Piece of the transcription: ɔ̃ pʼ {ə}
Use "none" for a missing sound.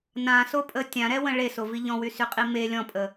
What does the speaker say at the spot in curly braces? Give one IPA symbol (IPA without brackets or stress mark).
ə